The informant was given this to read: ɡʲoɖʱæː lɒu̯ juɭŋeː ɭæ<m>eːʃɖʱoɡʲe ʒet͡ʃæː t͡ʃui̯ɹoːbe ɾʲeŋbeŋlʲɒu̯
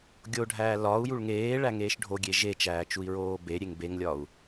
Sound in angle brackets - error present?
yes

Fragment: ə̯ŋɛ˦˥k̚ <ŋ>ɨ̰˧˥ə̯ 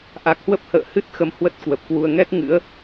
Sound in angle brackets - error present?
no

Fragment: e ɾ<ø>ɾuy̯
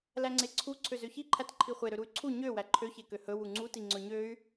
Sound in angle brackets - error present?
no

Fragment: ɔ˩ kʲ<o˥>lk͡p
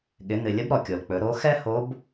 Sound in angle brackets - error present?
yes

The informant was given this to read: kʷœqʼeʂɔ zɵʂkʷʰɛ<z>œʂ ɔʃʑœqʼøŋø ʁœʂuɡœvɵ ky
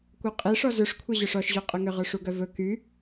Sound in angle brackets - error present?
yes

